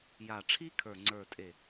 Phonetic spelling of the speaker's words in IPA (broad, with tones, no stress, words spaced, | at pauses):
ja˧˩ʈ͡ʂʰi˥kʰə˞˧˩ ŋ͡ǀə˞˧˩tʼe˧˩